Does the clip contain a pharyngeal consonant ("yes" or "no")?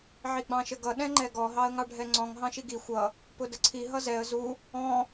yes